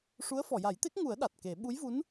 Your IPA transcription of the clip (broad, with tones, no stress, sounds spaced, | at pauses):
ʂ u˧˥ ə̯ f ɔ˨˩˨ j a˨˩˦ j t̪ e˦˥ k̚ ŋ u˨˩˦ ə̯ ɗ a˨˩ t̚ k e˨˩˦ ɓ u˧˥ j v u˧˥ n